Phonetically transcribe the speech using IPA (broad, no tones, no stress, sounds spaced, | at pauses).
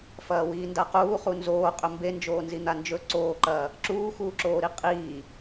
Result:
f ɐː w iː n d a q uː χ u n z oː qʼ ɵ m b e n d͡ʒ oː n z i n̪ a n d͡ʒ ɵ ǀ oː ǃ ɐː | ǁ uː x uː ǁ oː ɾ i qʼ iː